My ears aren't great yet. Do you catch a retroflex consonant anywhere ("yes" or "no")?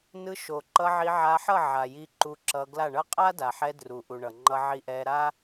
yes